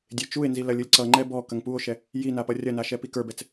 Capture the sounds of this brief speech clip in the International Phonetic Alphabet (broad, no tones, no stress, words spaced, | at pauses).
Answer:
dʲet͡ʃue̯nzi lɐlʲɯlʲǀʌŋ͡ǃɛ bɔ kɐŋpuo̯ʃɛ | ji napʌrʲɐna ʃɛpikə˞bɛt͡s